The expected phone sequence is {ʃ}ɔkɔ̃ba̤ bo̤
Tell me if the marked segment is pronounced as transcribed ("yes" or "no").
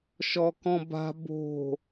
yes